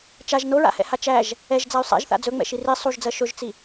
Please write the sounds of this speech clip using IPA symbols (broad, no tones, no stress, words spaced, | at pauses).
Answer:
t͡ʃaʒ noɹa̰hɛ̰ha t͡ʃæʒ | ɛʒd͡zay̯ sˤɛ̰ʒθa̰ d͡zɵŋ͡mɛ̰ʃi ri sˤuʒd͡zɜ ʃɵʒt͡si